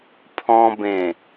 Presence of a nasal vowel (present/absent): present